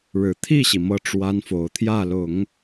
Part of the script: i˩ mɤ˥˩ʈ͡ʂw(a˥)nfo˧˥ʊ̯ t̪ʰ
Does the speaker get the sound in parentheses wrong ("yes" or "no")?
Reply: no